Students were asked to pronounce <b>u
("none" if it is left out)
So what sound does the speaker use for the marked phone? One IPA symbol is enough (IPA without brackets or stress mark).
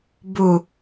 b